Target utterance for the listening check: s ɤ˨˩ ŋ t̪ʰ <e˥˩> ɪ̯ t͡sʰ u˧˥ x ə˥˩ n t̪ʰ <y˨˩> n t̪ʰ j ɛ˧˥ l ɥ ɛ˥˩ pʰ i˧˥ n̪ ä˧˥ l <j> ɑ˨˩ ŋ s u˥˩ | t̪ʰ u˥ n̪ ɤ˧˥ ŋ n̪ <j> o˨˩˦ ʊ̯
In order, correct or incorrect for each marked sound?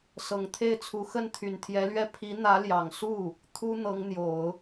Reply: correct, correct, correct, correct

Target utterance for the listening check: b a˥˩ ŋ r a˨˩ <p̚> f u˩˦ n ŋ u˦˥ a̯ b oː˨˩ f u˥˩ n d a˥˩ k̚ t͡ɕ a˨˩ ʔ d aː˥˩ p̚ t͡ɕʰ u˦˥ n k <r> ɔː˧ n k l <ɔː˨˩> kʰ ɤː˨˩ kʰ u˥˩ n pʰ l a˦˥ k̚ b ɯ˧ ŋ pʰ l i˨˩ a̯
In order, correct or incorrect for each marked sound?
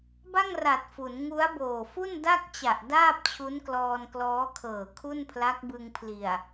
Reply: incorrect: t̚, incorrect: l, incorrect: ɔː˦˥

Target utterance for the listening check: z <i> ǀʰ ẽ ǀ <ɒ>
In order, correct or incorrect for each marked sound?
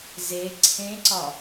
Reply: incorrect: e, correct

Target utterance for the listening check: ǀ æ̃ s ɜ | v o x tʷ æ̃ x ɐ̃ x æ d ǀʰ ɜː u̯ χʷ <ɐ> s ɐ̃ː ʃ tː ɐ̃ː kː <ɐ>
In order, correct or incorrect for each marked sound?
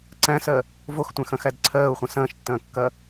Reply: incorrect: ɐ̃, correct

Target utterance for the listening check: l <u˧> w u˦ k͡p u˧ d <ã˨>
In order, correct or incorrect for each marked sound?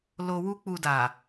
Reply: incorrect: o˧, incorrect: a˨

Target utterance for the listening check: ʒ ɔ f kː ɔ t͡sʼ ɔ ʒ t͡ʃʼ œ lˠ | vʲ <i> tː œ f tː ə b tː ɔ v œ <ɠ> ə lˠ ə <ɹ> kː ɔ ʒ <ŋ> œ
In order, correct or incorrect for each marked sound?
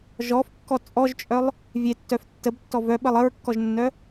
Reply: incorrect: e, incorrect: ɓ, correct, incorrect: nː

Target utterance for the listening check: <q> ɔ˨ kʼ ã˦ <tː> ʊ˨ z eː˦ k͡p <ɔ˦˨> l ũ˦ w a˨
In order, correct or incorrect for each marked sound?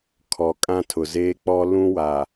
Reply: incorrect: kʰ, incorrect: tʰ, incorrect: ɔ˦

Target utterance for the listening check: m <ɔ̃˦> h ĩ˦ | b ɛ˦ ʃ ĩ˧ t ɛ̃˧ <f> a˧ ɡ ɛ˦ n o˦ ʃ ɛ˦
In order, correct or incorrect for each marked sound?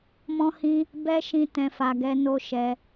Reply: correct, correct

